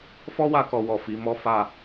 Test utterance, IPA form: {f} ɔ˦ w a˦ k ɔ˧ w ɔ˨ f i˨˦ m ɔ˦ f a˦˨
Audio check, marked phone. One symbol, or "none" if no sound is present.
f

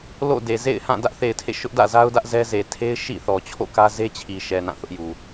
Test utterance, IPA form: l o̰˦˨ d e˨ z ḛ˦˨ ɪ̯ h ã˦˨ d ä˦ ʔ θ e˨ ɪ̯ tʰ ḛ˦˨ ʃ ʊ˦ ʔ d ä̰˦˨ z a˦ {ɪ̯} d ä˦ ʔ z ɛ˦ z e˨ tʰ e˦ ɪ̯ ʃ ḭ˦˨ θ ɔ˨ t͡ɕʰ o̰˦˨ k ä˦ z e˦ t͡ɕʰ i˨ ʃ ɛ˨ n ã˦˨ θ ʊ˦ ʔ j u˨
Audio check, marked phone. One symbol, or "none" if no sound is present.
ʊ̯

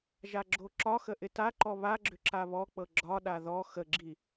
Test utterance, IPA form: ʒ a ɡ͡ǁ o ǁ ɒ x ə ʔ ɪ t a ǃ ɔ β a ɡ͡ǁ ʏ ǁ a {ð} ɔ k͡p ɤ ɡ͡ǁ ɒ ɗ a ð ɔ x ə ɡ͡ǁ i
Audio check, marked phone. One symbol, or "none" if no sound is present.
β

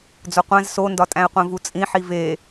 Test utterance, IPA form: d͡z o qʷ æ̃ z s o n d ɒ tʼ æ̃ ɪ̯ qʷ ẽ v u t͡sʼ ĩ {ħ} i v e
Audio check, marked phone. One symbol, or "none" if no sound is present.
ħ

